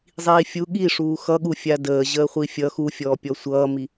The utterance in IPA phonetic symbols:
zˤiːfʲu ɠiʂuː xʌɠu fʲadəː ʑəːχʷifʲʌ xufʲɔː pʲɔsʷʌːmi

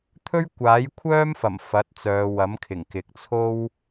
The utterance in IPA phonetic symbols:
t̪ʰɵ˥ɥkʷaː˨˥jkʷʰœː˥mfɐ˨˩m fɐ˨˥t̚t͡sœː˨˧ wɐ˨˥mkʰɪ˨˩ŋ kɪ˨k̚t͡sʰo˥w

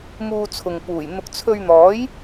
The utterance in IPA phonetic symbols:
muː˧t͡sʰʊ˨ŋpuː˨˩jn̪ʊ˧k̚ t͡sʰɵ˧ɥn̪ɔː˨˥j

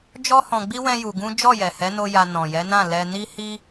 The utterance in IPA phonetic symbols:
d͡ʒɔ˦hɔ̃˧ɡ͡bi˦ wɛ̃˦ju˧ ɡũ˦ d͡ʒɔ˦˨jɛ˨hɛ˨˦no˧ ja˧nɔ̃˨ jɛ˨˦nã˦˨ lɛ˧ni˦ hi˦

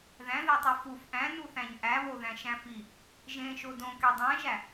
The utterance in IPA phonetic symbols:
ðæ̃ðetˤi fuf ʔæ̃nuθæ̃ɲ ʔæβoðæ̃ʃæ̃ fi | ʒẽʃo dõke dˤæ̃ʒæ

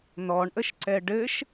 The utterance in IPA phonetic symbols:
n̪ɔɳʔəʃǀɛ ɖɘʃ

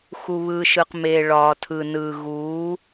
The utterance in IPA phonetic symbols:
xu˨βɯː˨ʃɯ˨qmeː˨ ɭɒː˨tʰɯ˨nɯː˨ ɣu˨˦

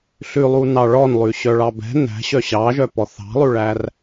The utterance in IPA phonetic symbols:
ɬʉlˠu nɑɭɔnlˠʉ ɕœɭɑbɛ̤ næ̤ɕœ ɕɑʒœpɔ θɑ̤lˠʉɭær

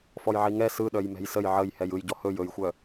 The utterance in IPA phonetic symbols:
fɔjʕiŋɛ sɯɗœj mɛ̤jsəj ʕəj hɛjɯjɟɔ hɵj ɵjxʷœ

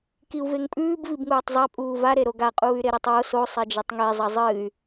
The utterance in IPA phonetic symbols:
kiu̯veŋpʼʉːb vibŋuːtˤzˤa pʼuːva ɾeɾoɡa qʼuːy̯ɾeɾetˤwo so sˤed͡ʒetˤŋe zˤɐzˤɨːy̯

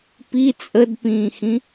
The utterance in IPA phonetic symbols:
pi t͡sʼədpĩːxĩ

